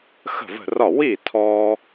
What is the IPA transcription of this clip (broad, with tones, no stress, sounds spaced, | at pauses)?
x ə̤˥˩ v ə̤˥˩ r ɒ˥˩ w i˥˩ tʰ ɔ˧